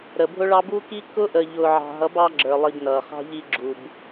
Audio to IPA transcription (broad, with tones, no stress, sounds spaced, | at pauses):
ɾ ə˨ bʱ ʊ˦ ɭ ɑ˦ b u˦ k i˦ k ʊ˦ ʔ ə˨ ʎ ʊː˨ ʕ ɑ̤˨ ɦ ʌ˨˦ b ɑ˦ ɡ͡ǁ ə˞˨ lˠ i˨ b n ʌː˨ χ ɑ̤˦ ʎ i˦ ɡ͡ǁ u˨ b